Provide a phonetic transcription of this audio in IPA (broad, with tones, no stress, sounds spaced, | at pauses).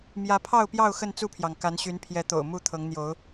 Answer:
m j ä˨˦ pʰ ɑ˥˨ ʊ̯ p j ɑ˥˨ ʊ̯ x ə˥˨ n t͡s u˥˨ pʰ j ɑ˩ ŋ k a˨˦ n ɕ y˨˦ n pʰ j ɛ˨˦ t̪ o̰˨˩ ʊ̯ m u˥˨ t̪ʰ ɤ˨˦ ŋ n̪ j o˨˦ ʊ̯